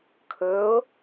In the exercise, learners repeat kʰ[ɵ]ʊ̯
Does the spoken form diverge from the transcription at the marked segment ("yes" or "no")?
no